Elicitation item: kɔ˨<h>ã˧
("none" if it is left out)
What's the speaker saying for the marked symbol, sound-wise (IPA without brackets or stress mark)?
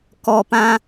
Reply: p